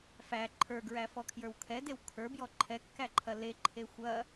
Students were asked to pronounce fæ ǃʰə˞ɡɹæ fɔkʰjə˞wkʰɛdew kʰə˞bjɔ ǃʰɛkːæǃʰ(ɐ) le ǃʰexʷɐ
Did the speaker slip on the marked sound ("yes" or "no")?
no